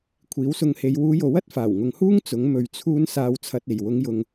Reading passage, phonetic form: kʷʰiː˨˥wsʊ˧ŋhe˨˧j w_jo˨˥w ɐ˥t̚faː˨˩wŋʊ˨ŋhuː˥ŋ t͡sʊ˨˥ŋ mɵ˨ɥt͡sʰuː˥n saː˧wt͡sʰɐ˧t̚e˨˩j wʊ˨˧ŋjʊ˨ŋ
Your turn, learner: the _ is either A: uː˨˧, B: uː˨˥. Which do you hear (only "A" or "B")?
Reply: A